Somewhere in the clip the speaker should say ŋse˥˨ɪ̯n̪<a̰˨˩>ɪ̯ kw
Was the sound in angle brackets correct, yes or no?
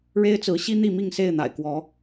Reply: yes